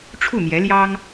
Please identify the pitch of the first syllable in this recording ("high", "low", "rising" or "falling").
falling